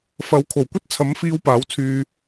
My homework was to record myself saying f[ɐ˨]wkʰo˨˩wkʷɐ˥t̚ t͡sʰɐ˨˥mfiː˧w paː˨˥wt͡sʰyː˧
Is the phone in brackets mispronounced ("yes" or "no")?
yes